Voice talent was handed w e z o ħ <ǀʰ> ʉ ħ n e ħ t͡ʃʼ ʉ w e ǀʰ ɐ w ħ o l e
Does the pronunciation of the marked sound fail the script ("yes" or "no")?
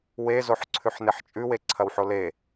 no